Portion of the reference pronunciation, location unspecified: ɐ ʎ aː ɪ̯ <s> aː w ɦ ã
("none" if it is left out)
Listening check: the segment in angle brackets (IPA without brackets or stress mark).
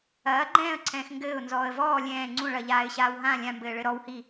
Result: ɕ